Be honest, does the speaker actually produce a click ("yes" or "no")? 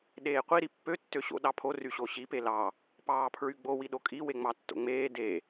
no